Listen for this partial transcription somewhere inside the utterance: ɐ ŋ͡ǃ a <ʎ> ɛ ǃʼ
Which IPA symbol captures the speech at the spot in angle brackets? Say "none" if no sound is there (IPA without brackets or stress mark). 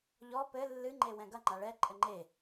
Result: ɭ